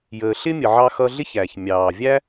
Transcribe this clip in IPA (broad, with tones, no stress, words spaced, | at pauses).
jəː˩ɬɪ˥mʲə˩ʕɑ˧ xʌ˧ɮɪ˥çæ˩ç mʲɑː˩vʲæ˥